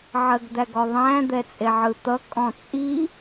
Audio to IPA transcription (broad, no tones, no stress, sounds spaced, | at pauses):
ʕ ɜ ɡ d̪ æ ɡ ɔ ðˤ æ̃ d̪ ɛ t͡sʼ e ʕ ɯ t̪ ʌ kʼ ɔ̃ t͡sʼ i